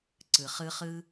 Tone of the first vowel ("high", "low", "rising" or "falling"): low